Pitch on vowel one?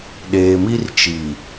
low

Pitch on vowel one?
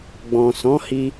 low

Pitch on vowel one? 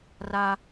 high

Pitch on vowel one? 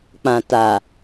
low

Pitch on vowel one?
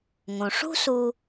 low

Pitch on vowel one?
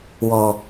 low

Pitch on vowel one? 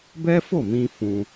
high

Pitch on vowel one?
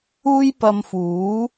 high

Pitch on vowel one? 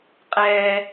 low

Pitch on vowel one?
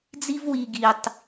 high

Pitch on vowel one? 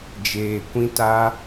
low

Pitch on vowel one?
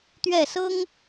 falling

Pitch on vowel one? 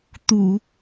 low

